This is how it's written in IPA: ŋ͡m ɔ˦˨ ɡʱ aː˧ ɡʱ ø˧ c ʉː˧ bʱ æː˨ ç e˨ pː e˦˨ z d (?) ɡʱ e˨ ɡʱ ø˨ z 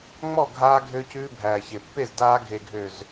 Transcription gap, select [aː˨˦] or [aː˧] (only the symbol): aː˧